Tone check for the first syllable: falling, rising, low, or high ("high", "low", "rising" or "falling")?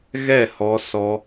falling